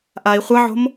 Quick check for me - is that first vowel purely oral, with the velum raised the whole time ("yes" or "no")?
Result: yes